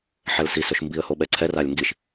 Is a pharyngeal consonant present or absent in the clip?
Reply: present